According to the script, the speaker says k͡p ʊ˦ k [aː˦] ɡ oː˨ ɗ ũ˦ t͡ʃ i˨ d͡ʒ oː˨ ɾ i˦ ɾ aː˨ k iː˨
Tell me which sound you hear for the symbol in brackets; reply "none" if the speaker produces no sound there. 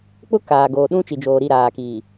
aː˨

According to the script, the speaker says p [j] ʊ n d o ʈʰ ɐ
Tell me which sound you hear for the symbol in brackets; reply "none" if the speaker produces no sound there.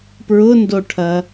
ɹ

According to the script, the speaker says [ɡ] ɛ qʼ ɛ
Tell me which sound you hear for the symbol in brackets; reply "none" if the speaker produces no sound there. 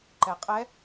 ǃ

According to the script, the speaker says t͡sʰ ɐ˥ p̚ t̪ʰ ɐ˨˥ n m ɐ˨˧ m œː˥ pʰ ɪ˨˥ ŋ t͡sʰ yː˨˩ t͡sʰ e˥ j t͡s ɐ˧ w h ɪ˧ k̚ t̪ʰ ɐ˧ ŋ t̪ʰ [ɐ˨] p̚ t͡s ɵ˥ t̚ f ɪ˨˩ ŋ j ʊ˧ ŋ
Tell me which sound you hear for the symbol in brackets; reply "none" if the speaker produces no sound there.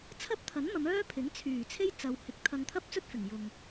ɐ˥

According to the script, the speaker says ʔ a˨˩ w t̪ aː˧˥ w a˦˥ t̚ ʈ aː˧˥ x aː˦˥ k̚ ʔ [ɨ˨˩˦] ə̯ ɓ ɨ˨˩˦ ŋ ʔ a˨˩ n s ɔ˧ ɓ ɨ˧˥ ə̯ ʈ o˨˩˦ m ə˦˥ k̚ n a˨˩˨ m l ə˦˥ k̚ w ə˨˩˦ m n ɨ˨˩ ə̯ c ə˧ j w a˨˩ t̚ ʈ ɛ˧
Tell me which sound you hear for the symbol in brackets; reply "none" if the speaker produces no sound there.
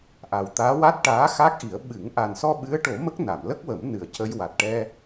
i˨˩˦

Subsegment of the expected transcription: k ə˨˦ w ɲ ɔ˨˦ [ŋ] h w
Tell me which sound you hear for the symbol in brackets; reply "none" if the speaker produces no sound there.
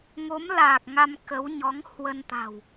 ŋ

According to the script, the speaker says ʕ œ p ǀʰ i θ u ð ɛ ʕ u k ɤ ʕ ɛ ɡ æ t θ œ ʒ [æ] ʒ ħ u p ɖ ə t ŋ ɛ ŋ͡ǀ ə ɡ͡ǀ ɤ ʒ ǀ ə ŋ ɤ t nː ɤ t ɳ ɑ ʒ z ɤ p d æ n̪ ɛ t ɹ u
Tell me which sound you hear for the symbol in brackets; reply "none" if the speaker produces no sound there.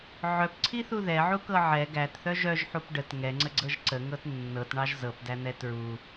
œ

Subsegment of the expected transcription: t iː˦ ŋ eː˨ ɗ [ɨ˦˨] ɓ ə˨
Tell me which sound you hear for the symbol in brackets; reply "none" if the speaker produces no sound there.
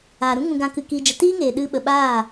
ɨ˧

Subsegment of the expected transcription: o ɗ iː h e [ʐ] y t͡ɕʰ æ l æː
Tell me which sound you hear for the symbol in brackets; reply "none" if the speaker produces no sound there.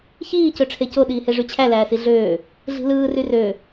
ʐ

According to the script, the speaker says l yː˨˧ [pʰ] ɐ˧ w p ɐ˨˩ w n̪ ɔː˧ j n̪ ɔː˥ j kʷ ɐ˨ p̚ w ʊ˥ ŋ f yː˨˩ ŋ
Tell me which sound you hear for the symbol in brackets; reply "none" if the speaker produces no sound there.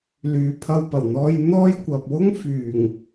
pʰ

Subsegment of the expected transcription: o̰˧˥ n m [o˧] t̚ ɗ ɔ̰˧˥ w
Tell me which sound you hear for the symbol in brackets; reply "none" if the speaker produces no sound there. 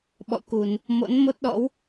o˦˥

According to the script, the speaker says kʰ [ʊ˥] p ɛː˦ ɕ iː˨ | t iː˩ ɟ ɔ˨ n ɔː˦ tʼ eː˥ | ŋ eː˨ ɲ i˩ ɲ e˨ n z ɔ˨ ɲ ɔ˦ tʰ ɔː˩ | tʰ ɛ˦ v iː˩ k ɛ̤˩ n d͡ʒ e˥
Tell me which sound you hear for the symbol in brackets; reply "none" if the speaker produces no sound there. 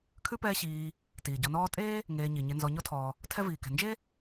ʉ˥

